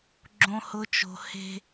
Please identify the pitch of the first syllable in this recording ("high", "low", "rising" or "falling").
high